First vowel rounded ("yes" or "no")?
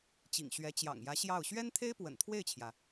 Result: no